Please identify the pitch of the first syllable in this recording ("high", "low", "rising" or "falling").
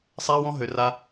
high